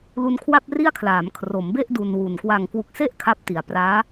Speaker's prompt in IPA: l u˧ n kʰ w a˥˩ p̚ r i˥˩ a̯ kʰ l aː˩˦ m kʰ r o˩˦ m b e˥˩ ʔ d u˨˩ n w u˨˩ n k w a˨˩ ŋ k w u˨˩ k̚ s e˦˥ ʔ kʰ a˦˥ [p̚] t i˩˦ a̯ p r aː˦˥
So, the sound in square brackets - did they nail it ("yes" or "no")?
yes